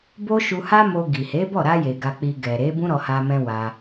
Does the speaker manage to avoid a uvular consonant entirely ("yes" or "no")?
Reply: yes